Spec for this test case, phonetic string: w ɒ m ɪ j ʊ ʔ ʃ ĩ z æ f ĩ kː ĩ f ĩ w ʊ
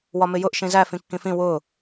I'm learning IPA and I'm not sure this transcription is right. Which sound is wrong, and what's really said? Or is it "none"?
none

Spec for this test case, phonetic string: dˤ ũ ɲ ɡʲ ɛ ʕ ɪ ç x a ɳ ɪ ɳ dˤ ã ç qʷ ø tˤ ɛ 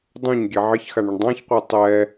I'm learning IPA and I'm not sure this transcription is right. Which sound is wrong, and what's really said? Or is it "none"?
ø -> ɛ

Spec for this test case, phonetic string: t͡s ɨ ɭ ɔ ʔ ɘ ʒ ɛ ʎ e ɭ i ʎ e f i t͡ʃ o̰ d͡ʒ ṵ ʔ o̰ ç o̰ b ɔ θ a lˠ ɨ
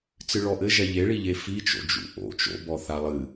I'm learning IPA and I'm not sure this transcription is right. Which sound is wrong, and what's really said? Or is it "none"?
ç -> t͡ʃ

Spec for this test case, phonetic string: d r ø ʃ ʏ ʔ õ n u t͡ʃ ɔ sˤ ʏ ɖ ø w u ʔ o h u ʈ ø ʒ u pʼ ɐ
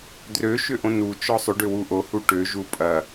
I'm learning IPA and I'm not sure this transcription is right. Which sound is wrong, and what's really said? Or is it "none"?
none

